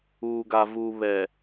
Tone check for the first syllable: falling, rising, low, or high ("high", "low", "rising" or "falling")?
low